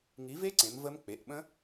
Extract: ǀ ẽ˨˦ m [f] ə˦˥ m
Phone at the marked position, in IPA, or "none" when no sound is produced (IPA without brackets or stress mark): v